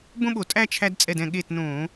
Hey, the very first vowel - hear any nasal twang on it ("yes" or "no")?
yes